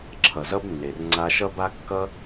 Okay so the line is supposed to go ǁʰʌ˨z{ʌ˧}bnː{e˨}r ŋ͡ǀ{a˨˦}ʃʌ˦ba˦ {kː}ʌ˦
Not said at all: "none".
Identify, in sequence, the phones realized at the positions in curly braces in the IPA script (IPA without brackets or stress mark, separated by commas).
ʌ˦, e˨, a˧, kː